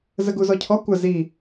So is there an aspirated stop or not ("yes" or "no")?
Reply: yes